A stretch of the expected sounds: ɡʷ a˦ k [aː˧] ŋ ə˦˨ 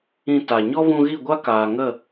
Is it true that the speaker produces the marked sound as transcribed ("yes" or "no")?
no